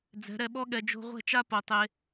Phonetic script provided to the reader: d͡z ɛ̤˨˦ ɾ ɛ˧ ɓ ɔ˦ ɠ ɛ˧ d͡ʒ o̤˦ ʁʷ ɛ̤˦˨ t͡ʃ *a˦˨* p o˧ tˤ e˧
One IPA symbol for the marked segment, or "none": a˦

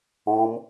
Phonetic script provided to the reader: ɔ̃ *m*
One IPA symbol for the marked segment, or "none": m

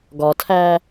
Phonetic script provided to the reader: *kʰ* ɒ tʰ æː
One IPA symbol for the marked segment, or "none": ɡ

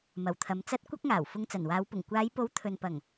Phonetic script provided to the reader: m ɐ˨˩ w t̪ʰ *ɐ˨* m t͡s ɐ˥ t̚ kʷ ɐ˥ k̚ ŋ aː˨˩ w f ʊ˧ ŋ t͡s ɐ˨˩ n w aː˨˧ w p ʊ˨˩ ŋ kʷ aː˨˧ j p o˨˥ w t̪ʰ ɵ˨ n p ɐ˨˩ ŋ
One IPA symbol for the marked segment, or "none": ɐ˨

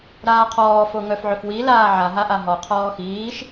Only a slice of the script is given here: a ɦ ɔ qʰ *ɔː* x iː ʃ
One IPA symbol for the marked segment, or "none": ɔː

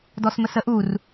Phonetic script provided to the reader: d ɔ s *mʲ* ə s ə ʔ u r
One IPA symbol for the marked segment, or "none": m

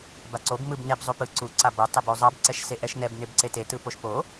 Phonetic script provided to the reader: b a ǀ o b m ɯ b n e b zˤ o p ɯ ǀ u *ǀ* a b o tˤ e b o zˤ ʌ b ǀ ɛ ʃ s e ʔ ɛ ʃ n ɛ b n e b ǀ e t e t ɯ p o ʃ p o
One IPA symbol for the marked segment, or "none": ǀ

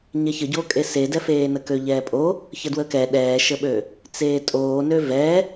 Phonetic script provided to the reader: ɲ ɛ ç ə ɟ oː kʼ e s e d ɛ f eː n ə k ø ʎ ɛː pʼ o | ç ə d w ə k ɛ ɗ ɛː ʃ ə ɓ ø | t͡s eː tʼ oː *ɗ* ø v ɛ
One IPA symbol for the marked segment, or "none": n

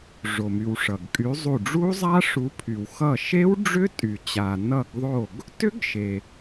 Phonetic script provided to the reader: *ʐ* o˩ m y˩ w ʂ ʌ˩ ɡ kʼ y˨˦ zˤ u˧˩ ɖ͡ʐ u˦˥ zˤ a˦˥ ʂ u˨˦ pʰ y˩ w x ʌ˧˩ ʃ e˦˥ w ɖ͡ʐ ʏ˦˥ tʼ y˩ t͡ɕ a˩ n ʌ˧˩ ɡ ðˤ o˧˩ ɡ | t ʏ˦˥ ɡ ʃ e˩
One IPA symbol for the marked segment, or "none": ʐ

